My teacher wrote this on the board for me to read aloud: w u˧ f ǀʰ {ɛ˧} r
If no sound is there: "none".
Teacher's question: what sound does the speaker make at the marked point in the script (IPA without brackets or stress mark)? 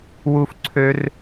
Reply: ø˧